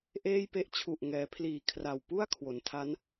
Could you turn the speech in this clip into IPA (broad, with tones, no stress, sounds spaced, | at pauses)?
ʔ eː˥˩ j p e˥˩ ʔ t͡ɕʰ u˨˩ ʔ ŋ ɛː˩˦ pʰ l iː˨˩ kʰ r a˨˩ w p u˥˩ a̯ kʰ w o˩˦ n tʰ a˦˥ n